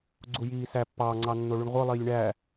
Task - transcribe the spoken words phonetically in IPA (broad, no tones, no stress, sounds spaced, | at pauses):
ɡ͡ǀ u j iː s æ pː ɑ ŋ͡ǀ ɑ nː o ɭ y ɳ ʁʷ ɯ lˠ iː lʲ ɳ æ